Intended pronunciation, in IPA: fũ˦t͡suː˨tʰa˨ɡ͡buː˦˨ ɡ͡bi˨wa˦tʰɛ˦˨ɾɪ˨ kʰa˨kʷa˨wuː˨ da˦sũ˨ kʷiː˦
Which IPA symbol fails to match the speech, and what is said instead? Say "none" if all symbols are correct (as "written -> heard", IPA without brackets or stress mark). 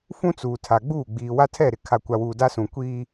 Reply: i˨ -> iː˨